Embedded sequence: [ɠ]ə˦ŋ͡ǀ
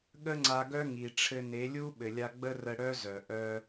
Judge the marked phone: correct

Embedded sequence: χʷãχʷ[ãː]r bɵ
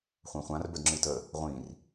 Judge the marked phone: incorrect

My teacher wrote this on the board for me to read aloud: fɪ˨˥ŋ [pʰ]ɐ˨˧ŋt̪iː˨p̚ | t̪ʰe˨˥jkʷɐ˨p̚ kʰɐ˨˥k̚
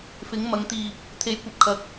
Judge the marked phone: incorrect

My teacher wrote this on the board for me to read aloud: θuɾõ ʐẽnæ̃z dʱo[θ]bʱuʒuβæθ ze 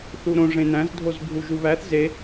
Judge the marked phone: incorrect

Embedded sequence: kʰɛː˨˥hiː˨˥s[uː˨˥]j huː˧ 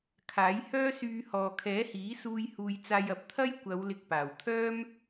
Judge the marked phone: incorrect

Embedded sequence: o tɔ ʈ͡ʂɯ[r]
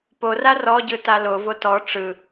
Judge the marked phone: incorrect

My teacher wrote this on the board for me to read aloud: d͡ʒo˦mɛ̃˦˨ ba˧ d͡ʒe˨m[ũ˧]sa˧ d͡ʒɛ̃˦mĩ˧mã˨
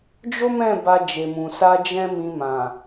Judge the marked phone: incorrect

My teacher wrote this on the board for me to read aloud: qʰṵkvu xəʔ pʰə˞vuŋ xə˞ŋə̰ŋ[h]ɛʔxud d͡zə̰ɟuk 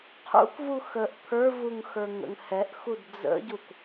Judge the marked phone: correct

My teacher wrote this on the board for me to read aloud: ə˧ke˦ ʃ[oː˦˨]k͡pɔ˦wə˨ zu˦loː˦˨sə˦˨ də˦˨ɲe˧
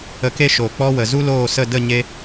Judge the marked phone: incorrect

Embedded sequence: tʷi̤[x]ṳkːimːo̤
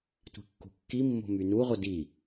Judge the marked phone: incorrect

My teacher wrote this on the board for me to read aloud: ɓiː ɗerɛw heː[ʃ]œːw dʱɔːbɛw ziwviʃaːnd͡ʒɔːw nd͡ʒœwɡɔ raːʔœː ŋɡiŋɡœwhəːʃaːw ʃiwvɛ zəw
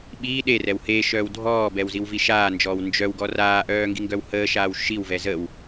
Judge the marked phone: correct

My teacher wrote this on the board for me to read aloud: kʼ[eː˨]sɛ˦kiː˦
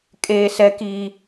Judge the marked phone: incorrect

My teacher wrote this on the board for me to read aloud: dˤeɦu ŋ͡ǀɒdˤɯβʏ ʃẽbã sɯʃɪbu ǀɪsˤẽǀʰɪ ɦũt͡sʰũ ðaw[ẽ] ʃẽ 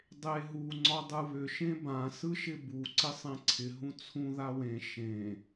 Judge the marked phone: correct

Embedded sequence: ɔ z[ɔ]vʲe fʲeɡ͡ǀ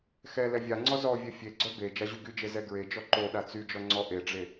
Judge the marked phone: correct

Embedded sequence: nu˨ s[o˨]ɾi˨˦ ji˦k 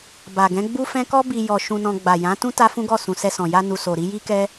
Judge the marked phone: correct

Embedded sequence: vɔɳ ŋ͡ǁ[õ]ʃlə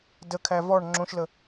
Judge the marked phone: correct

